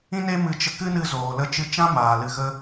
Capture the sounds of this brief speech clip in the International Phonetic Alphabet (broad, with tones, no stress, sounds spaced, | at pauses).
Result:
ĩ˦ n e˦ m ɨ˧ t͡ʃ ə˧ k ɨ˦ n ɨ˧ z oː˨ l ə˧ t͡ʃ ɨ˧ t͡ʃ ã˦ m aː˨ l ɨ˨ ɣ ə˧